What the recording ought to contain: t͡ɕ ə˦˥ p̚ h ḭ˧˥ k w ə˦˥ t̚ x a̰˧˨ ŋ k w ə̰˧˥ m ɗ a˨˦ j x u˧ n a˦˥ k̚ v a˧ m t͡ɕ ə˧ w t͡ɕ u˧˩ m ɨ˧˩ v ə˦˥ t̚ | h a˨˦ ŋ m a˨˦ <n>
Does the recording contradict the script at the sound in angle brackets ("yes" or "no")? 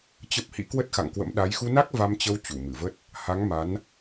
no